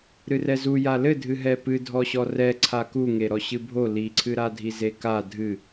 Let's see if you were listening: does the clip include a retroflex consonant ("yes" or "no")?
no